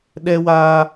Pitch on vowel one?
high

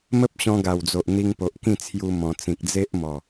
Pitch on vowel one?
high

